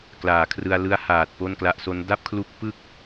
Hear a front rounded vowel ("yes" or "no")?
no